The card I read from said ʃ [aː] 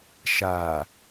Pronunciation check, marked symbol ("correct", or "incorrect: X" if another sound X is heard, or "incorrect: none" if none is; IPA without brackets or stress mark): correct